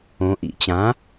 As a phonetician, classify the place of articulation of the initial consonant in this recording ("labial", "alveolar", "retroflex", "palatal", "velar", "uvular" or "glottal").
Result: glottal